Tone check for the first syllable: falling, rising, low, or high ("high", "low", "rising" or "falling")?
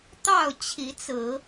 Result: falling